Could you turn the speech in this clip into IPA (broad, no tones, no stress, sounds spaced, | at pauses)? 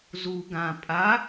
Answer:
z u ɡ ã pʼ a